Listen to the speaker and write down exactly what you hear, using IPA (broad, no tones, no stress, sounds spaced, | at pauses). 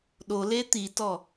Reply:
ɗ o l e t̪ i t ɔ